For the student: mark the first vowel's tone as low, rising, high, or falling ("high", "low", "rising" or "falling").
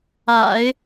low